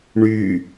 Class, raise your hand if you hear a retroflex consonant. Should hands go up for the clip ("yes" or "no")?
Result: yes